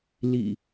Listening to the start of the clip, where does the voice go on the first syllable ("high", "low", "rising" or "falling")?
low